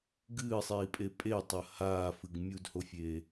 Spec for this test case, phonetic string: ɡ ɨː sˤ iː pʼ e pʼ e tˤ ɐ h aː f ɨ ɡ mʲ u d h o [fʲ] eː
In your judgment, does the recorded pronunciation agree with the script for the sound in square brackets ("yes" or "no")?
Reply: yes